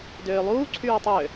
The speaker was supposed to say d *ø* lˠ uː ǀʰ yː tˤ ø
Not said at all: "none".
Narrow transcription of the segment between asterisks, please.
øː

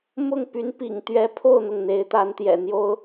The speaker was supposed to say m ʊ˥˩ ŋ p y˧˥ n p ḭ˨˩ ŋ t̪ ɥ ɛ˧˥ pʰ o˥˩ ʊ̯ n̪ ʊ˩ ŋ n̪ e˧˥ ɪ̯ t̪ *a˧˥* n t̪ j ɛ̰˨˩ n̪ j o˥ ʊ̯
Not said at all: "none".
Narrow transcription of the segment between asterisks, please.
a˧˥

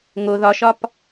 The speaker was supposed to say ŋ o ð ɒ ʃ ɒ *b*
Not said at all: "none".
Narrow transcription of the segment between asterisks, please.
p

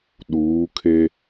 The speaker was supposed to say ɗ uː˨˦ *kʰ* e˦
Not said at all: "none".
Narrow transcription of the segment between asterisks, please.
kʰ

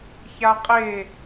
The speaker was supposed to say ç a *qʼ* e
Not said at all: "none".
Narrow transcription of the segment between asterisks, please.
qʼ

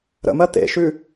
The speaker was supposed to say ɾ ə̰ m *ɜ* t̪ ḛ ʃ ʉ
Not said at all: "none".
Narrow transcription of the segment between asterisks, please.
ɜ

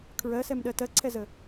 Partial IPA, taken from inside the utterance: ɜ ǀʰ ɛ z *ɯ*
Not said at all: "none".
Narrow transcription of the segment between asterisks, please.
ə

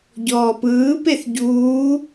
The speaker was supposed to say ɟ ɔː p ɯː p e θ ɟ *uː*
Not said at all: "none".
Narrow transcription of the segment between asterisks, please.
uː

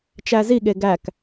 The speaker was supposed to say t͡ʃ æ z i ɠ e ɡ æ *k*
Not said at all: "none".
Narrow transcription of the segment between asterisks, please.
k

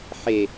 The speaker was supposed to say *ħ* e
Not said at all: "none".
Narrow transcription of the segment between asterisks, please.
ħ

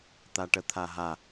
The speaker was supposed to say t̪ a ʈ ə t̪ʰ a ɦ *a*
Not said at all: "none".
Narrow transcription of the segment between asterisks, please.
a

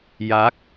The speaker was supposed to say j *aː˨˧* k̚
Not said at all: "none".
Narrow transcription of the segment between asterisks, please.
aː˨˥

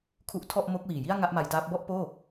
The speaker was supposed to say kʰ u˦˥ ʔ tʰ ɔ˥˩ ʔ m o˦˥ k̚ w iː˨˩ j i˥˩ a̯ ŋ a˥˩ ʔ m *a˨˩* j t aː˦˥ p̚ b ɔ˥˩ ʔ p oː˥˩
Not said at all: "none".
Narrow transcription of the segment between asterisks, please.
a˧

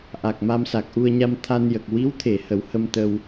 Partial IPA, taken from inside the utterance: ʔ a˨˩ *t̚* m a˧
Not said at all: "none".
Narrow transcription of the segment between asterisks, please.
k̚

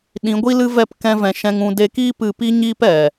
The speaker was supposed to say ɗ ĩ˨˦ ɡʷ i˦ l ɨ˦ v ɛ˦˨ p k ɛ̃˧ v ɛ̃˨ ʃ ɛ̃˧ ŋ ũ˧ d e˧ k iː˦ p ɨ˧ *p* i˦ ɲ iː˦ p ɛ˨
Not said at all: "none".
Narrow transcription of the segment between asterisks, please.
p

